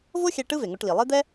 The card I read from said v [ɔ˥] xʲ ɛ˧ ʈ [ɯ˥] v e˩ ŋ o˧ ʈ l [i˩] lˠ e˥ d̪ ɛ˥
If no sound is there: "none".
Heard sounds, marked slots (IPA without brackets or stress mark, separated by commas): o˥, ɯ˥, i˩